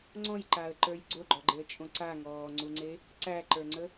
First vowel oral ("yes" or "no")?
no